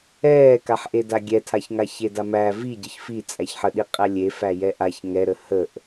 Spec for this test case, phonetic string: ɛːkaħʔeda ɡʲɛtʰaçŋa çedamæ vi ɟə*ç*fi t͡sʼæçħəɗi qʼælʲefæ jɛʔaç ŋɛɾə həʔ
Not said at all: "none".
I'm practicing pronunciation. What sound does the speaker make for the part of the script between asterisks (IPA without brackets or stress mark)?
ç